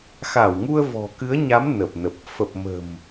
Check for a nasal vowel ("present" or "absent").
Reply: absent